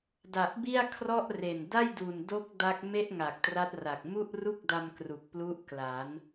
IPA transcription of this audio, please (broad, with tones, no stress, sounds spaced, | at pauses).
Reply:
d a˨˩ ʔ b i˥˩ a̯ kʰ r ɔ˥˩ ʔ r e˨˩ n d a˥˩ j d u˨˩ n d o˦˥ k̚ d a˦˥ k̚ m e˥˩ ʔ ŋ a˨˩ k̚ t r a˦˥ t̚ r a˨˩ k̚ m u˥˩ ʔ r u˥˩ k̚ d a˧ m k r u˨˩ k̚ p l u˦˥ ʔ k l a˩˦ n